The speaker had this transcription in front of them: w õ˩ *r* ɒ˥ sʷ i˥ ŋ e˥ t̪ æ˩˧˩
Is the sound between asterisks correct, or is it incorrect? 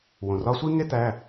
correct